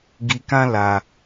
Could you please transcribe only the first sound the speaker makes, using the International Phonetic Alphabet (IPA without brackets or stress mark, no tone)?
ɡ